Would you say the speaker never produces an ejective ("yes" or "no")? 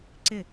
yes